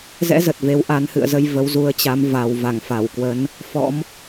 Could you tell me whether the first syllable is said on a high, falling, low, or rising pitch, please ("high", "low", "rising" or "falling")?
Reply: rising